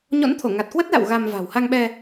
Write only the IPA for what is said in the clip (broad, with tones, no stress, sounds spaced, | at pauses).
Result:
ɲ ɔ̰˧˥ n t̪ʰ o˧˩ ŋ a˨˩ t̚ k w ə˦˥ t̚ l a̰˧˨ w ɣ a˧ m v a̤˨˩ w h a˧ ŋ ɓ ɛ˧